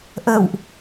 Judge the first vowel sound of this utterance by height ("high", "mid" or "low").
mid